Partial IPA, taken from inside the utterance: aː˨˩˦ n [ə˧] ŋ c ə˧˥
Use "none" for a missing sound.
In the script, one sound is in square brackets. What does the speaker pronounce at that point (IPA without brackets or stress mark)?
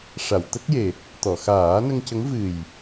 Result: ə˧